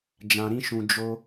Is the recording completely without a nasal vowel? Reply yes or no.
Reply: no